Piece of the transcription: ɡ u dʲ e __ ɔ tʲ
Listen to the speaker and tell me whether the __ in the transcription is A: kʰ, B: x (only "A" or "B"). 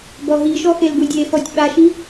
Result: B